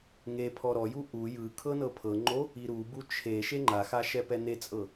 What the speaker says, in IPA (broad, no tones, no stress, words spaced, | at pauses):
ŋepʰɔ ɾɔju ʔu jɯkʰɤ nɤpʰɤŋ͡ǃo | iɾubu t͡ʃʰe ʃeŋ͡ǃaxa ʃɛpɛnet͡sʼɤ